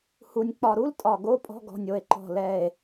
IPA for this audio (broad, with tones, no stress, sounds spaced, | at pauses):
h u˨˩ nʲ k͡p ɒ˨˩ ɾ u˧˥˧ l tʼ ɒ˨˩ ɡ o˧˥˧ pʼ ɔ̤˧˥˧ ɡ ɔ̤˨˩ nʲ o˨˩ e̯ ǃ ɔ̤˨˩ l ɛ˨˩ e̯